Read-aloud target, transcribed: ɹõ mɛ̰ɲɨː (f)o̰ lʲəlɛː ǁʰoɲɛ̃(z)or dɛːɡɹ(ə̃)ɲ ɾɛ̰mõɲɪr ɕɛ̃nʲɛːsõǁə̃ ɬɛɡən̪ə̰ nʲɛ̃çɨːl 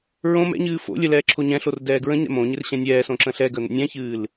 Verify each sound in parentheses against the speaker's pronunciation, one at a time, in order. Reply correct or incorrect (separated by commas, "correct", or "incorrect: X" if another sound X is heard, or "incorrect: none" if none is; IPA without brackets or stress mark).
correct, incorrect: ɬ, correct